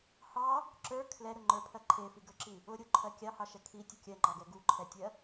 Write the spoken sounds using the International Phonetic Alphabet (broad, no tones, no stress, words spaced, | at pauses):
hɑ | ǁə˞ kʰlɛ ɾʊŋ͡ǃə˞pʰɜ ǃʰefiɡə˞ǁi | ʊɾʲoǃʰɜ kʲɑhɑʃɛ kʰi tʲʊkʲɜŋ͡ǃɑɡɛ ɡuǃʰɛtʲɜ